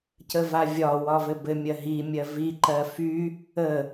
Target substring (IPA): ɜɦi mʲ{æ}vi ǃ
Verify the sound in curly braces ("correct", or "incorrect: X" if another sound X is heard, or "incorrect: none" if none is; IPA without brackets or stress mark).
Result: incorrect: ɜ